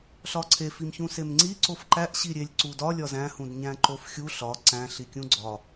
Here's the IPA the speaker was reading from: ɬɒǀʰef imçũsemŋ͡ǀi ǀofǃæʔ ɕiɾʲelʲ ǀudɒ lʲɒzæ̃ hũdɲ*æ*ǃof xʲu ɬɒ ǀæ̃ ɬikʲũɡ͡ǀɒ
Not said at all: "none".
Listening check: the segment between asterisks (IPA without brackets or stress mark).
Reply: æ̃